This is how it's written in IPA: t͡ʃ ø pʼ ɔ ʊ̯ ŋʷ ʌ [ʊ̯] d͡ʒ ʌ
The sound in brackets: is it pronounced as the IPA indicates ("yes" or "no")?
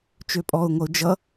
yes